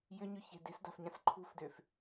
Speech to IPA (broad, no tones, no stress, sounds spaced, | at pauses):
j ʏ ɲ ʏ ç e̤ d e̤ s d a̤ f ɲ ã s ǃʰ ṳ f d ø f